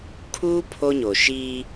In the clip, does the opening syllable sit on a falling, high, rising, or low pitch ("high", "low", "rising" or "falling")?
high